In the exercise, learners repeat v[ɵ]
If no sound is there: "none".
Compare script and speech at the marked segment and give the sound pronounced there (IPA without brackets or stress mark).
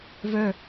œ